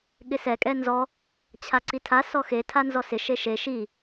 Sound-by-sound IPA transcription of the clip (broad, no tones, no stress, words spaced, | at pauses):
ɠɪsɛ kʼɛnzɔ | t͡ɕʰaǀitʰa sɔxe tʰanzɔsɪ ʃeʃe ʃi